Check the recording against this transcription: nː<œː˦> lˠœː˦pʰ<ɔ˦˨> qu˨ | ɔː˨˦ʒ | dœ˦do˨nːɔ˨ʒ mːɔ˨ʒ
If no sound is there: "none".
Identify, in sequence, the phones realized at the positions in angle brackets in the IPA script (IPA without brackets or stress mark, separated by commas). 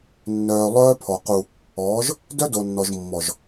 œː˨, ɔ˨